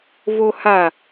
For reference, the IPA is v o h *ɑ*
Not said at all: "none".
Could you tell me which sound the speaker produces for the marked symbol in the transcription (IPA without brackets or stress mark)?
a